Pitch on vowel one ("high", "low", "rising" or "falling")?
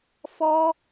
high